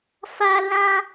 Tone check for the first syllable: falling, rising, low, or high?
high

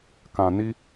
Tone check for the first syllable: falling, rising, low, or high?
low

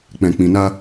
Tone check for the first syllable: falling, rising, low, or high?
low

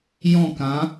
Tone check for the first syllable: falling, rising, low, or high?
falling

